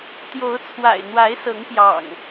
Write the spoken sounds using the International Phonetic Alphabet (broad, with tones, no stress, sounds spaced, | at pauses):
t̪ j o˨˦ ʊ̯ t͡sʰ w a̰˨˩ ɪ̯ n̪ w a˨˦ ɪ̯ s ɤ˨˦ ŋ p j ɑ̰˨˩ ŋ